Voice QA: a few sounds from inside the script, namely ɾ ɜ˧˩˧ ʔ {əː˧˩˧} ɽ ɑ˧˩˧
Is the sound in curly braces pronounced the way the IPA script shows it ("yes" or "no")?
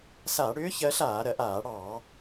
no